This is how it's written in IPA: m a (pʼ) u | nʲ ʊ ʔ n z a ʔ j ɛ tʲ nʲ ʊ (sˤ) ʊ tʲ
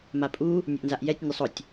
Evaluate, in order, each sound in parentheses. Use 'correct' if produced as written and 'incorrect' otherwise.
correct, correct

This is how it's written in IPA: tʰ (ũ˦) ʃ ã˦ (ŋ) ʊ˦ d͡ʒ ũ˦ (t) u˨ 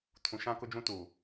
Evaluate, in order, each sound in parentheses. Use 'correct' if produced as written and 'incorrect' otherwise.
incorrect: ũ˨, incorrect: k, correct

